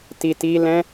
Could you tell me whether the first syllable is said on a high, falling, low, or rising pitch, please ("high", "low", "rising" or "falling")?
low